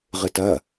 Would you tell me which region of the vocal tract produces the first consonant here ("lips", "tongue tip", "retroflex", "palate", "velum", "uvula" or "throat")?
uvula